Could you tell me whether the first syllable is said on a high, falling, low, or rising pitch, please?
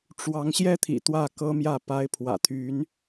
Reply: rising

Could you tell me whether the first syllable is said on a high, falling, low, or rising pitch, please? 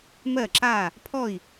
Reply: falling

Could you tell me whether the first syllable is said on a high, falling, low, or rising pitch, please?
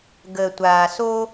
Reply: low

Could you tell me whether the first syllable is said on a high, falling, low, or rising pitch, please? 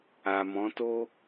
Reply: low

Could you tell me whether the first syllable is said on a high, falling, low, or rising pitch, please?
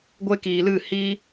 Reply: high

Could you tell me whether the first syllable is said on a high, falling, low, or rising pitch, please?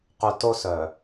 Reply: low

